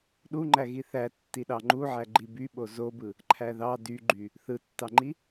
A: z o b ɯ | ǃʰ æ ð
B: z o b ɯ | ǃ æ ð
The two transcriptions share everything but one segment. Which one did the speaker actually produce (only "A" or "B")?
A